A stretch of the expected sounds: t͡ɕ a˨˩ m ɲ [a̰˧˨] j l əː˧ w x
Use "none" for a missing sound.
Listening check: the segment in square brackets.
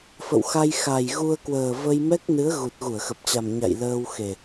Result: a̰˧˨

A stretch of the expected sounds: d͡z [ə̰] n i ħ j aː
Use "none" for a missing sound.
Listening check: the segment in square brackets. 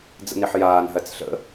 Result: ə̰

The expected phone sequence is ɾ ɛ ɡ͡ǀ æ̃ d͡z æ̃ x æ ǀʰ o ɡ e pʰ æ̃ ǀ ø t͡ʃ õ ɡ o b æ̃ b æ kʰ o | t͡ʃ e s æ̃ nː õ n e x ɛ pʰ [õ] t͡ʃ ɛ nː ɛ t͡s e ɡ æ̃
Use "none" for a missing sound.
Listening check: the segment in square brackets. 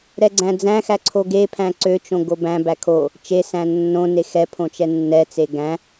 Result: õ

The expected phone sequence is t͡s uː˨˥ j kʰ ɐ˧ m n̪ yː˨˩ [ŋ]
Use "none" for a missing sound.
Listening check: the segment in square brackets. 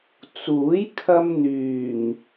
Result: ŋ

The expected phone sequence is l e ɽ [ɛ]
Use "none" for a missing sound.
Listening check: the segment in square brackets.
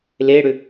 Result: ʏ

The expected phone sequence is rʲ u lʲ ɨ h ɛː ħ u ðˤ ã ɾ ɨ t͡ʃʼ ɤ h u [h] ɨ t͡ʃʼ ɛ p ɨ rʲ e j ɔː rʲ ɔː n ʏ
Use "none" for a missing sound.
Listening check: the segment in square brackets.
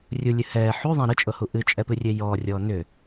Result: ʔ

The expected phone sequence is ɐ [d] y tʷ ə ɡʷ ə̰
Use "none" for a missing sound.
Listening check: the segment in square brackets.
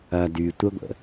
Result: d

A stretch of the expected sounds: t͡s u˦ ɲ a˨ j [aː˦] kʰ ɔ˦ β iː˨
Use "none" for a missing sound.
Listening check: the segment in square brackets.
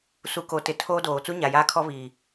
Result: aː˦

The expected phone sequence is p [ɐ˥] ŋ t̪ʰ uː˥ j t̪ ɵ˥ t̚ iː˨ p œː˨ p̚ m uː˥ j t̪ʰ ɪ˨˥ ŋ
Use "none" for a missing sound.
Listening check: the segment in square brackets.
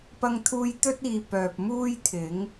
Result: ɐ˥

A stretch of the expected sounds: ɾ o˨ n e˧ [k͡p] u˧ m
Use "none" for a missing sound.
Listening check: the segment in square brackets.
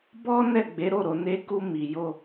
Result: k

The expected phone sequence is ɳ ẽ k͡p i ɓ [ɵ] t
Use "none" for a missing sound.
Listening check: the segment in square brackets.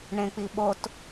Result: o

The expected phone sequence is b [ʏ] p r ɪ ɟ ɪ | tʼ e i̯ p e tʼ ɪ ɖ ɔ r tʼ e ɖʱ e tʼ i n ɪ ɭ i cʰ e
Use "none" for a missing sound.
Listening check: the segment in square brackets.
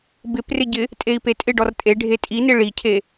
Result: ɪ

